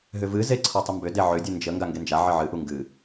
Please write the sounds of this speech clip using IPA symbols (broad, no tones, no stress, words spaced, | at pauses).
ɦʏvɨze ǀʰɔtˤʏmbʏde ʕʏdʲɨ nd͡ʒə ŋɡaŋɡend͡ʒaʕə ʕɨʔu ŋɡɨ